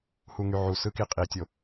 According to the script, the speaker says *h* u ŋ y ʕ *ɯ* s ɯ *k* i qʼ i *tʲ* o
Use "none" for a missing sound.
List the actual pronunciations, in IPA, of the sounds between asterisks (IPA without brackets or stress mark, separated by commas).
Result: h, u, k, tʲ